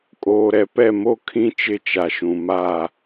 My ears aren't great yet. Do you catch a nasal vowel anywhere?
yes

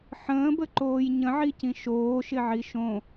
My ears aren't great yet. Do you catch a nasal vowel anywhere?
yes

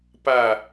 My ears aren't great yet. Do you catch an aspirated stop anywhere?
no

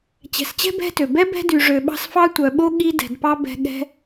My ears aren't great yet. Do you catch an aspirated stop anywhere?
no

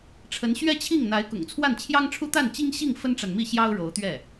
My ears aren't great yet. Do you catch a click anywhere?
no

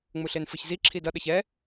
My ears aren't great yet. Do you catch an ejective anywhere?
no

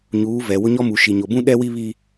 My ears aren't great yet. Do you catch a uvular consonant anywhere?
no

